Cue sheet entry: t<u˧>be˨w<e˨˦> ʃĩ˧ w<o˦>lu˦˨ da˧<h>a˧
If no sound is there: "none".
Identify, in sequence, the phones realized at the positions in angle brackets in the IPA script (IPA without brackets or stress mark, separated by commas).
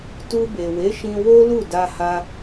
u˧, e˨˦, o˦, h